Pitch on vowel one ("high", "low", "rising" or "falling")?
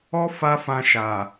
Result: high